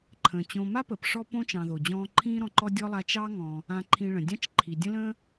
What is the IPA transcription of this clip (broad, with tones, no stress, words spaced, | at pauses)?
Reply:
ǃʰə̃ː˩ t͡ɕõ˨ma˥pəː˩p ʂɔ˦ põ˥t͡ʃɑ̃˨ðo˩d͡ʑɔ̃ː˦ ǃʰĩː˦ɾɔ̃˨ǃɔ˦ dʲɔ˥lˠa˦ t͡ʃɑ˦ŋɔ̃˨ | ã˨ǃʰĩ˨ ɭə̃˩dʲɑ̃˥t͡ʃǃʰi˩ dʲə̃˥lə̃ː˥